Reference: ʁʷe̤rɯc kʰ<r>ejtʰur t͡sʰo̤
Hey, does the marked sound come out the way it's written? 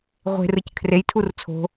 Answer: yes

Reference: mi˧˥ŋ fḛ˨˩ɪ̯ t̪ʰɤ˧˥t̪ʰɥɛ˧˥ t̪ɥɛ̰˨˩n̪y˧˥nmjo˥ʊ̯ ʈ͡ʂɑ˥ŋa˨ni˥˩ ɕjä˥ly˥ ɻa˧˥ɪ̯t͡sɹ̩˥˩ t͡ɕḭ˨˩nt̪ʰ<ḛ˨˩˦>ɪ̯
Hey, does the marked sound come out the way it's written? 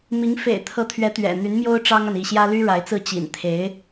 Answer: no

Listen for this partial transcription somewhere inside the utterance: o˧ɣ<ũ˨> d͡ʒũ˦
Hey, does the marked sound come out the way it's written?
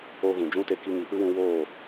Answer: yes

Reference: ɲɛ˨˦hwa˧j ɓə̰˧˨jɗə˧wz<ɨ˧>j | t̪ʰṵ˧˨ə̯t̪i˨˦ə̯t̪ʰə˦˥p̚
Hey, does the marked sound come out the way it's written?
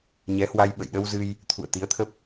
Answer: yes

